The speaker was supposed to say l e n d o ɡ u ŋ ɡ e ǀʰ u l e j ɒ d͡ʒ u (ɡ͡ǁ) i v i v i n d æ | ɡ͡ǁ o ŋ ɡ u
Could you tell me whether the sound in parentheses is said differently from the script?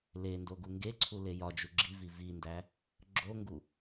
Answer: no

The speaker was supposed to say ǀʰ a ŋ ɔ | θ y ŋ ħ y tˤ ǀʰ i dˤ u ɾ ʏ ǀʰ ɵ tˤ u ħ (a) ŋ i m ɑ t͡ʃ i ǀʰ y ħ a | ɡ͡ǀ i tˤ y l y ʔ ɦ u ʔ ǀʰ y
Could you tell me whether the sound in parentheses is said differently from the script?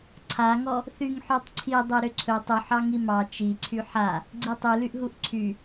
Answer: yes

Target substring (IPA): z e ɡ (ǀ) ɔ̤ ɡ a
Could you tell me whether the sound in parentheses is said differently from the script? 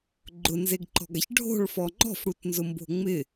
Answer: yes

